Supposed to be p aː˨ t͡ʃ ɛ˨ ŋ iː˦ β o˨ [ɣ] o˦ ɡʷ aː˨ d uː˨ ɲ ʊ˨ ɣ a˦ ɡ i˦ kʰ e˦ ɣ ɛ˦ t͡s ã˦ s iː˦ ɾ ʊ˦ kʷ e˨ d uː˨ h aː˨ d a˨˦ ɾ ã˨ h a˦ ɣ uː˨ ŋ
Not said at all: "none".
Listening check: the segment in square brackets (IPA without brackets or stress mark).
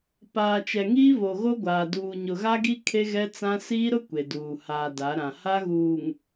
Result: ɣ